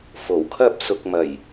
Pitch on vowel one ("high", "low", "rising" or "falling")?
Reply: low